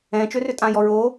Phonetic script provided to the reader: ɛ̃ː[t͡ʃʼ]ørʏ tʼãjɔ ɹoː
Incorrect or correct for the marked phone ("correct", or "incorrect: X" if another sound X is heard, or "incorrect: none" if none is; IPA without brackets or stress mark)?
incorrect: t͡ʃ